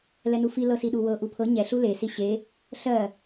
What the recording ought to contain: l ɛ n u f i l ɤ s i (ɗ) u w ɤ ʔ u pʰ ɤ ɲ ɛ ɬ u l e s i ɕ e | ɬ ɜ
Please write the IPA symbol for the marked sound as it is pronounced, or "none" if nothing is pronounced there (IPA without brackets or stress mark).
ɗ